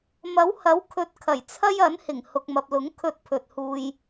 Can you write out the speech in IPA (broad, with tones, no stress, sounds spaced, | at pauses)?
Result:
m ɐ˨˥ w h ɐ˨˥ w kʰ ɵ˨˥ t̚ kʰ ɐ˨˩ j t͡sʰ ɐ˥ j ɐ˨˥ n h ɪ˨˩ ŋ h ʊ˨ k̚ m ɐ˨ p̚ l ʊ˨˥ ŋ kʰ ɵ˧ t̚ pʰ ɵ˨ t̚ h uː˧ j